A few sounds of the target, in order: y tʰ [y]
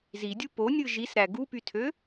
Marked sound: incorrect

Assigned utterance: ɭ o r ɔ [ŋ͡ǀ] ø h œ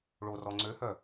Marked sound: correct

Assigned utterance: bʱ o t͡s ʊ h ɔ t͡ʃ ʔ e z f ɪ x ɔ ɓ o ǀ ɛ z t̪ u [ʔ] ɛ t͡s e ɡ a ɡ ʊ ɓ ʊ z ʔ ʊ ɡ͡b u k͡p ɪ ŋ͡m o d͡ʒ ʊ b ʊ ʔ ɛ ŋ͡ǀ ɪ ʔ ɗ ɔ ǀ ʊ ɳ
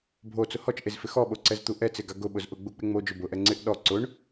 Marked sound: correct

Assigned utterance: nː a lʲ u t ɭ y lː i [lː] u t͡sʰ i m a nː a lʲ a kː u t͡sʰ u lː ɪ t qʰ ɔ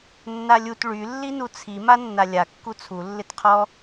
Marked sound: incorrect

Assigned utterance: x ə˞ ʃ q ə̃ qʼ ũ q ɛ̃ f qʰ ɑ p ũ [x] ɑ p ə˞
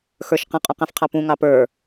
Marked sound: incorrect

